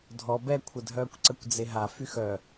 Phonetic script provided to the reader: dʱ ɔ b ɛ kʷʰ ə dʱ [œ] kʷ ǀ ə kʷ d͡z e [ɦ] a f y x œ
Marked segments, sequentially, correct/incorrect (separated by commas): incorrect, correct